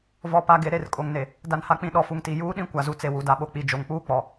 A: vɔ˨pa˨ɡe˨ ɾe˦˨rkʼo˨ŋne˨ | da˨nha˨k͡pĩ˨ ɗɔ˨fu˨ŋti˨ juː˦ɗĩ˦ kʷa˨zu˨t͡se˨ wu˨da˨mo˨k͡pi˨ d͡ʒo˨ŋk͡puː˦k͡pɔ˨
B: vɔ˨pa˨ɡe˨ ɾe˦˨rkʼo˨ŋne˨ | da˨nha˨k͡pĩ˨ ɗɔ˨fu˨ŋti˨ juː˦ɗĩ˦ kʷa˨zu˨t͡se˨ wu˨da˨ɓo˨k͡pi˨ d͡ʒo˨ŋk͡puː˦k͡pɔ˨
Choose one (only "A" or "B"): B